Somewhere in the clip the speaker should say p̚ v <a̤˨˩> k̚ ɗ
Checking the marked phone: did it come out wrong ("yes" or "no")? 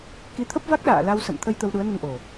yes